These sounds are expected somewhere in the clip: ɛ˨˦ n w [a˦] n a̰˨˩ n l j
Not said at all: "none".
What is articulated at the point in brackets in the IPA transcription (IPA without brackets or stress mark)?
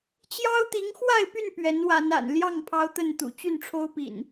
a˨˦